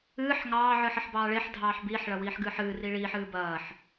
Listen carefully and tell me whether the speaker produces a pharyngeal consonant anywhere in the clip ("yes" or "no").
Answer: yes